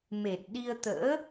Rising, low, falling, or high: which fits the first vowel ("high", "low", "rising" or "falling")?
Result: low